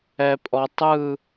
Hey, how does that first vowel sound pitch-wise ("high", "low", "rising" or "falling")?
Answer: low